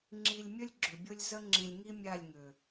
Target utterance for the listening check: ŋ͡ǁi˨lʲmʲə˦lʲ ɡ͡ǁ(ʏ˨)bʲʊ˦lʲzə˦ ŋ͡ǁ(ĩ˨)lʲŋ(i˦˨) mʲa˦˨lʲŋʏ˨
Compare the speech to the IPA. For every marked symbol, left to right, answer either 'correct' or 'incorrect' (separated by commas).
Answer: correct, correct, incorrect